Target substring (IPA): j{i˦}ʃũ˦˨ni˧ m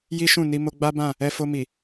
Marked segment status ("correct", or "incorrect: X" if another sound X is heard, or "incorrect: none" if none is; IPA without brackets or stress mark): correct